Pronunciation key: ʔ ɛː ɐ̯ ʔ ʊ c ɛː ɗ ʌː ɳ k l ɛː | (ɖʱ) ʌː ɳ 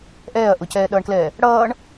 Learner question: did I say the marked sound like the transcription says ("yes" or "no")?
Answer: no